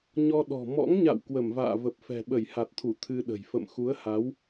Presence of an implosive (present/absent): present